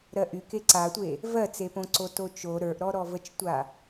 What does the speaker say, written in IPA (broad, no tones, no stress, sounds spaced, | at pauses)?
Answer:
ɾ ɜ ʔ y k e ǀ a tʷ e | v ɜ t͡s e p õ ǀ o t o t͡ʃ o ɾ ə˞ ʔ ɾ ɔ ɾ ɔ v ə t͡ʃ tʷ a